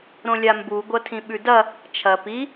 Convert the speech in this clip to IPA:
ɾ õ lʲ a m b u ɡʷ ɐ tʰ ĩ ɓ ʉ d ɐ | t͡ʃʰ ɐ p i

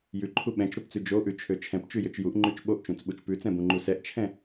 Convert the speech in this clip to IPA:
j ʉ ǃʰ u ɓ ɛ̃ t͡ʃ ɾ o p t͡s ʉ d͡ʒ o ʔ ʉ t͡ʃʰ ø t͡ʃʰ ɛ̃ p t͡ʃ ʉ j ø t͡ʃ j u ʔ ŋ͡ǃ ʉ t͡ʃ ɓ o ʔ t͡ʃ ũ t͡s ɓ u t͡ʃ p ʉ t͡s ɛ̃ b ũ ŋ͡ǃ u s ɛ ʔ t͡ʃʰ ɛ̃

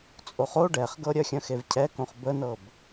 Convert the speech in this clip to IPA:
t͡sʼ o χ o ɖ ɛ χ ɡ ɤ ɾʲ œ xʲ œ̃ x e v cʰ ɛ k õ χ b ə n ɤ b

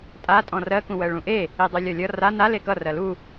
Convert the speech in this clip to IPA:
tʼ a tʼ ɔ̃ r ɜ k ũ w ɜ ɭ ũ ʔ e | i dˤ y lʲ ɒ lʲ ʌ r a n a l e k ʌ r ɜ l u

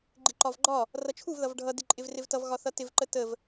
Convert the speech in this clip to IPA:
ɡ͡ǃ ɪ ǃ ɒ v ɡ͡ǃ ɒ | r ʌ t͡ʃʰ u v ð ʌ v ɖʱ ʌ d ɪ ǃʼ ɪ v r ɪ v t ʌ v ɣ ɒ θ ʌ t ɪ v ǃ ə t ə v

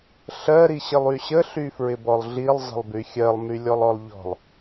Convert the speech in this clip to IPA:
ɬ ɜ ɾ i ɕ ɪ lˠ y ɕ ə ɬ y f ɹ ɪ b ɔ lˠ ɮ i lˠ zˤ ə̤ lˠ b y xʲ ɜ lˠ m y lʲ ɔ lˠ ɔ lˠ ʎ ɔ̤ lˠ

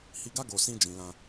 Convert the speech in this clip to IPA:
h i˧ ɡ a˦ ɡ o˧ s ĩ˦ d͡ʒ ĩ˧ l ã˧

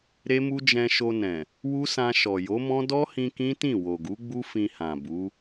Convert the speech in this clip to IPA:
ɾ e˦ m u˦ d͡ʒ ɛ̃˧ ʃ o˧ n ɛ̃˨ | w u˦ s ã˧ ʃ ɔ˨ j o˨˦ m ɔ̃˦ d ɔ˦ h ĩ˧ k ĩ˦ t ĩ˦˨ w o˨ ɡ u˨˦ ɡ͡b u˦ f ĩ˧ h ã˨ b u˨˦

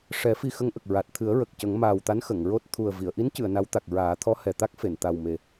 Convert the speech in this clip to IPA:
ʂ ɛ˨˩˦ f i˧ x ə˧˥ ŋ ʔ ə˨˩ k̚ ɹ a˨˩ t̚ t̪ʰ ɨ˨˩˦ ə̯ ɹ ə˨˩ k̚ c ə˨˩˦ ŋ m aː˨˩ w t̪ a˧˥ n x ə˨˩˨ ŋ ɹ o˦˥ t̚ t̪ʰ u˨˩ ə̯ v i˨˩˨ ə̯ ʔ i˧˥ n c ɨ˨˩˨ ə̯ n a˧˥ w t̪ a˨˩ k̚ ɹ aː˨˩˦ t̪ʰ ɔ˧˥ h ɛ˨˩ t̪ a˦˥ k̚ f e˨˩˨ n t̪ a˨˩ w m e˨˩

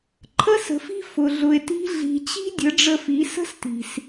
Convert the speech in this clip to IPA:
ǃʰ ə˦ s ə̤˨ f i̤˦ f ʊ˨ ɮ ʊ˨ e̯ t i̤˧ ɮ i̤˨ t͡ɕ i̤˦ dʲ ə˨˦ ɖ͡ʐ ə˧ f i˨˦ s ə̤˦ s t i̤˨ s

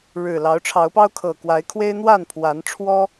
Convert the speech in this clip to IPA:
ɻ ɻ̩˨˩ l ɑ˨˦ ʊ̯ ʈ͡ʂʰ ɑ˨˦ ʊ̯ p ɑ˦ ʊ̯ kʰ ɤ˨˩ k w a˨˦ ɪ̯ kʰ w e˦ ɪ̯ n̪ w a˥˨ n pʰ w a˨˦ n ʈ͡ʂʰ w ɔ˦

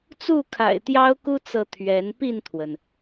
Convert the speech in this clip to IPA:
t͡s u˥˨ kʰ a̰˨˩ ɪ̯ t̪ j ɑ˦ ʊ̯ k u˦ t͡s ɤ˨ t̪ʰ ɥ ɛ˨˦ n p i˥˨ n t̪ʰ w ə˩ n

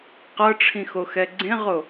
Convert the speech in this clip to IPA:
q ɤ ʈ͡ʂʰ ĩ x o x ɛ ɡ͡ǀ ẽ ʁ o

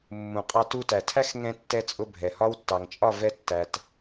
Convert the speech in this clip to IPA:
mː ũ˨ qʼ ɑ˧ t u˧ t æ˨ tʰ æ˦ x ŋ ɛ̃˧ tː ɛ˧ t͡sʼ ʊ˧ bʱ ɛ˨ h ɒ˦ w tː ɑ˨ ŋ t͡ʃʼ ɒ˦˨ v ɛ˧ tː æ˨ t

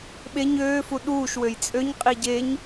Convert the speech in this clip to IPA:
ɓ e ɲ øː f u ɗ uː ʃ w ø j t͡sʼ ø ɲ qʼ i ɟ e ɲ

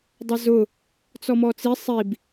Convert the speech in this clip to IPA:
dˤ ə z ʊ | t͡s ɔ m ɔ t͡s i sˤ i b

